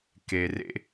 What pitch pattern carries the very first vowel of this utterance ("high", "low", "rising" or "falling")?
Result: low